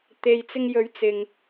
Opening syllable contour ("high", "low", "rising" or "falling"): low